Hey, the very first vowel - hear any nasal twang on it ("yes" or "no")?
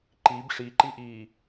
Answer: no